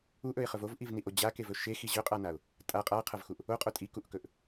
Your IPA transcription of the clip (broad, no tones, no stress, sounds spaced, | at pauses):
u ʔ ɵ ɪ̯ χ ɵ v o v ʔ i v n i ʔ o d͡ʑ a k e v ɵ ʃ e x i ʑ ɵ qʼ a n a ʊ̯ | tʼ a qʼ a qʰ ɐ v x u ʔ | o qʼ o tʼ i k u ʔ k ɵ ʔ